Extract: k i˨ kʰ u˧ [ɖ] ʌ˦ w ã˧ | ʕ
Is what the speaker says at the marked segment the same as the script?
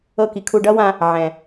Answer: yes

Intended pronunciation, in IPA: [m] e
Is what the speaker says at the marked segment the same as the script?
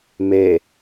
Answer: yes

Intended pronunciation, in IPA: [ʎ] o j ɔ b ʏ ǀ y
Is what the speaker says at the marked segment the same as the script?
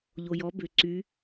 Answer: yes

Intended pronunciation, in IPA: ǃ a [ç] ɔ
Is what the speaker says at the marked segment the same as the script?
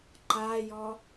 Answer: no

